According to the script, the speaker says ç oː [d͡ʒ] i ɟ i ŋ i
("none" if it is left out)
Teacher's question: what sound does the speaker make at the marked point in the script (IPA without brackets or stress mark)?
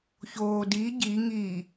d